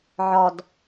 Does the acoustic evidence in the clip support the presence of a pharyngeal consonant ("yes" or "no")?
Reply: yes